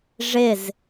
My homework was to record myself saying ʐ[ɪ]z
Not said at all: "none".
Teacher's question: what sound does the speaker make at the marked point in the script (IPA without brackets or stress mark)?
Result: ɪ